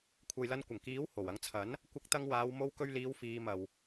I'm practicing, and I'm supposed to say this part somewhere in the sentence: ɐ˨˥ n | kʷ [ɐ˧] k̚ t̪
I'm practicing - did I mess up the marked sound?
no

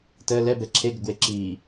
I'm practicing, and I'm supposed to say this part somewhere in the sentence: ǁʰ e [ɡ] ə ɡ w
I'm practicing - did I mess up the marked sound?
no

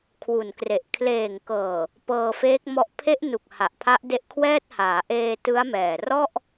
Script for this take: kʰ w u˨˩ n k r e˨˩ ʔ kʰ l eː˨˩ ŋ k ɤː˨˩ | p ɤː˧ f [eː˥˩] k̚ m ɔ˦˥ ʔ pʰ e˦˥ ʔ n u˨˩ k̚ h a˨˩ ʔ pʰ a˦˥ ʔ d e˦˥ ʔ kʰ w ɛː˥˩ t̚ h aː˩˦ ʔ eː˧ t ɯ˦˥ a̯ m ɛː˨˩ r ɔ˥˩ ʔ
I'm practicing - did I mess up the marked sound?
yes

